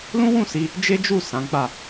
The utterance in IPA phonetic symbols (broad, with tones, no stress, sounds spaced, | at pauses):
l ũ˦ w ũ˦˨ s i˧ | d͡ʒ e˦ d͡ʒ u˦˨ s ã˨˦ ɡ͡b a˦˨